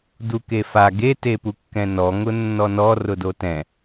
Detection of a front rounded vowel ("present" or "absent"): absent